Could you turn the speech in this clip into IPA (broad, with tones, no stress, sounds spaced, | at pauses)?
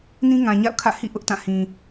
n ĩ˦ ŋ ã˨ ɲ a̰˦˨ ʊ̯ kʰ ä̰˦˨ h ḭ˦˨ ʔ ʊ˦ ʔ t ã˦˨ h ĩ˨